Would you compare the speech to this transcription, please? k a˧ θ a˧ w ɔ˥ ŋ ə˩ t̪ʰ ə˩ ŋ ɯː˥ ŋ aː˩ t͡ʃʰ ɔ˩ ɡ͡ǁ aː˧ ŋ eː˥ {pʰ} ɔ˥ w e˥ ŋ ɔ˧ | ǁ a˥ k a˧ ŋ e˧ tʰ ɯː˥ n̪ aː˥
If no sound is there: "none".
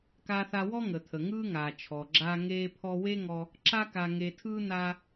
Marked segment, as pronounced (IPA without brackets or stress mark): pʰ